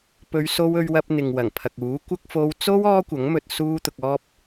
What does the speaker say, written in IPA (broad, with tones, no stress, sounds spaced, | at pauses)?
p ɵ˨˧ ɥ s o˧ w ɵ˧ ɥ w ɐ˧ p̚ n̪ ɪ˨ ŋ w ɐ˨˩ ŋ pʰ ɐ˨ k̚ uː˨˥ kʷ ɐ˥ k̚ f o˧ w t͡s o˥ w ɔː˥ kʷ ɐ˨˥ ŋ m ɵ˧ t̚ s uː˥ t̪ ʊ˧ k̚ ɔː˥ p̚